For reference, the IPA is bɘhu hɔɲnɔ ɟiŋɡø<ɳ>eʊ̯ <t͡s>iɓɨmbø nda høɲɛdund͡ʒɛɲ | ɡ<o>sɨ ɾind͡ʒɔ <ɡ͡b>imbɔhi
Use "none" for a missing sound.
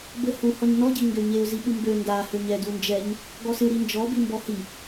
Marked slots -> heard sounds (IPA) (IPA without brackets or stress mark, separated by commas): ɲ, z, ɔ, b